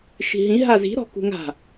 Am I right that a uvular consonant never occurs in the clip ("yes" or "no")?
yes